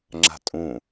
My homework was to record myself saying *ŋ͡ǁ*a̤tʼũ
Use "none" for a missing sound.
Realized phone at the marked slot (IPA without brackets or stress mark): ŋ͡ǁ